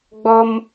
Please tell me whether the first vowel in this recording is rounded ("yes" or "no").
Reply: yes